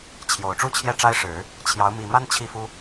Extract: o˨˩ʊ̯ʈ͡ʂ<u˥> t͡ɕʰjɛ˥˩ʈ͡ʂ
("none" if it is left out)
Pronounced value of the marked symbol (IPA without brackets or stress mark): u˥˧